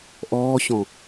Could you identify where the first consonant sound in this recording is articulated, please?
glottal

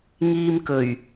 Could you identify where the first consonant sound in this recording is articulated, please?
velar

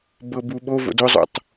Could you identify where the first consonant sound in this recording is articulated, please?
labial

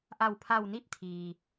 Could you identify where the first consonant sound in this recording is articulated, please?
glottal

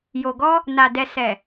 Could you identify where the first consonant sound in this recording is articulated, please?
palatal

